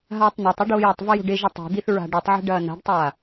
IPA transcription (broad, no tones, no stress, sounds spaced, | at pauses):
ɦ aː tˤ n a tˤ o ɖ oː j ɐ tˤ v ɐ j o̤ ɖ e ʒ ɐ tˤ i̤ d̪ i θ ɹ a̤ ɖ i tˤ ʕ e̤ ɖ ɐː n a̤ ɖ tˤ aː